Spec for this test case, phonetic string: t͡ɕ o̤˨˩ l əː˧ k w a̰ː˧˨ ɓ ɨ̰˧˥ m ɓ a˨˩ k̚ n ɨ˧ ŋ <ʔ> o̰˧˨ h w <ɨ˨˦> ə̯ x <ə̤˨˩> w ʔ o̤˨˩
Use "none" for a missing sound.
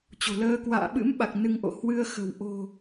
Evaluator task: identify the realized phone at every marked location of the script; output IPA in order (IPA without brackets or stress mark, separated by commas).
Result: ʔ, ɨ˧, ə̤˨˩